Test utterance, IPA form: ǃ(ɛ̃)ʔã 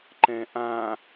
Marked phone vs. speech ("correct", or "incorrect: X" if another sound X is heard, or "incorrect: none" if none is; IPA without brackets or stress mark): correct